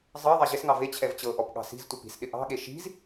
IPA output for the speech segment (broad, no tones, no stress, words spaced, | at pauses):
zˤɤ ðˤɛʑɪsŋɑ vet͡ɕʰɛv t͡ɕɤʔɔp ɠɑ̤si̤ztʷɤp i̤sɗɪ ʔɑ̤ɠe ʃi̤z